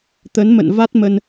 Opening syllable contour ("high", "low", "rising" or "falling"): rising